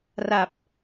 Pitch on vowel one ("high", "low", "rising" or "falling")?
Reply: low